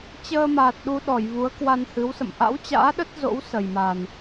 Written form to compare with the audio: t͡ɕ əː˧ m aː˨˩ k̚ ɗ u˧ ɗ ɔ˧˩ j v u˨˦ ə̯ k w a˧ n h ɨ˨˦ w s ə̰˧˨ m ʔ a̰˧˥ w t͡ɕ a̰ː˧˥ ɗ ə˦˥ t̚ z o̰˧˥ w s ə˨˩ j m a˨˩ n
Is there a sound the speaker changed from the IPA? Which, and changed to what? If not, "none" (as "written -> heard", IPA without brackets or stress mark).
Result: k̚ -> t̚